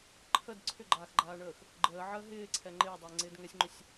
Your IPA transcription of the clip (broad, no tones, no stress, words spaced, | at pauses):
ǃʰəd ǀʰʏɡ͡ǃaːxɡ͡ǃaːɳəːx | ɡ͡ǃəːʕəː ɦɪːǀʰɛ ŋ͡ǃɪːdˤɪːŋ͡ǀɪːd ŋɛsʲŋ͡ǃʏsʲ